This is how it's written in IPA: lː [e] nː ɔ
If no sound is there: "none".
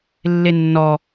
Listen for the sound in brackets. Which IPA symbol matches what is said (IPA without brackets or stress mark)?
e